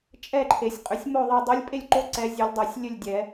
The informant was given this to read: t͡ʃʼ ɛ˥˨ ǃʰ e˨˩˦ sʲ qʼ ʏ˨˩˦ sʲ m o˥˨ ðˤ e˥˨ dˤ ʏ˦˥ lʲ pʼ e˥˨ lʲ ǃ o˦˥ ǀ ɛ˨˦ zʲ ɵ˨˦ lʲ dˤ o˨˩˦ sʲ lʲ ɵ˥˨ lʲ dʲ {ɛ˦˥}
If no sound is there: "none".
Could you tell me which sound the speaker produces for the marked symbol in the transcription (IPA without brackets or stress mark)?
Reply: ɛ˨˩˦